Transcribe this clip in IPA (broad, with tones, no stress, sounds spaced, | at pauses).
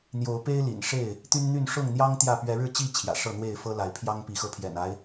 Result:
n̪ j o˨˦ ʊ̯ p e˦ ɪ̯ l ḭ˨˩ n ʂ e˥˨ ɪ̯ | t̪ y˦ n n̪ y˥˨ n ʂ ʊ˥˨ ŋ n̪ j ɑ˦ ŋ t̪ j ä˥˨ p ɥ ɛ˨˦ ɻ ɻ̩˥˨ t͡ɕ i˥˨ t͡ɕʰ j ä̰˨˩ ʂ ɤ˥˨ n̪ w e˥˨ ɪ̯ f ɤ˦ l a˨˦ ɪ̯ pʰ j ɑ˦ ŋ p i˨˦ x ɤ˧ pʰ j ɛ̰˨˩ n a˦ ɪ̯